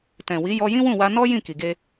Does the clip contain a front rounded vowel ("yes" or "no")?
no